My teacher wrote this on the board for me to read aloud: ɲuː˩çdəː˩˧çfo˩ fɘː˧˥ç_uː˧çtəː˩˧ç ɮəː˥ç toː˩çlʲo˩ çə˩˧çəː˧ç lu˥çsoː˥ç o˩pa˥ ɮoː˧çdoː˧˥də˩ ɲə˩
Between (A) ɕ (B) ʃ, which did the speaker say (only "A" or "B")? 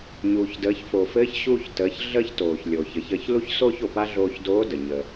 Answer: A